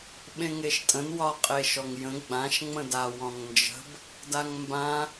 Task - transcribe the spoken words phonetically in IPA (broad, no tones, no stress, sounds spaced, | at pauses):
ɓ ẽ ŋ e ʃ tʼ ə̃ n w ɒ qʼ e ʃ ɔ ŋ j ə̃ ɡ͡b ã ʃ ŋ͡m ə̃ d a w ɔ̃ ŋ n d͡ʒ ə̤ b | d a ŋ m b ã